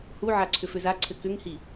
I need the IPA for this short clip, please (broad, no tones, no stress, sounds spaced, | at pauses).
h u ʕ a ǀʰ ʏ f ʏ z a ǀʰ ɘ k ʏ ŋ h i